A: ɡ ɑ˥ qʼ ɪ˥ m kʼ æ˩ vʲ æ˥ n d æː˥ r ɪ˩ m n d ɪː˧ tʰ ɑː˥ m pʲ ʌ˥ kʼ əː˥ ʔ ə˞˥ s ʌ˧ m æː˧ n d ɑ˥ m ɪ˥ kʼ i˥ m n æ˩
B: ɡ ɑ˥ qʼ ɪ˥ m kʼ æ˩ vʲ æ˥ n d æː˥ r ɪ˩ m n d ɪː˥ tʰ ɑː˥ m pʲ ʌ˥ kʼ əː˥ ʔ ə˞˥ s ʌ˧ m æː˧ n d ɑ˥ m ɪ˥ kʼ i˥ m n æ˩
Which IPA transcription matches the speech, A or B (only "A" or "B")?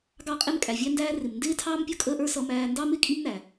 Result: B